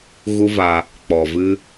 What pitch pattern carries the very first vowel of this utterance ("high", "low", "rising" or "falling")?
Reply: high